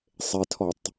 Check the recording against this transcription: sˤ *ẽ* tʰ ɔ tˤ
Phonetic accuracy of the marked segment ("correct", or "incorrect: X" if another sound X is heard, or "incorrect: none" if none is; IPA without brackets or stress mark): incorrect: e